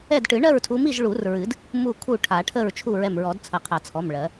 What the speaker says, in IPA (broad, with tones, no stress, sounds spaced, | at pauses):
ɛ˥˨ d ʈ ɨ˨˩˦ ɳ ɜ˥˨ ɹ tʰ u˨˦ m i˥˨ ʒ ɭ u˨˩˦ r ɹ ɨ˨˩˦ d | m u˧˩ kʰ u˧˩ ʈʰ a˨˩˦ ʈʰ ə˥˨ ɹ t͡ʃʰ u˥˨ ɹ ɛ˧˩ m ɹ ɔ˨˩˦ d t͡sʰ ə˨˩˦ qʰ a˨˩˦ t͡sʰ ɔ˩˧˩ m ɭ ɜ˨˩˦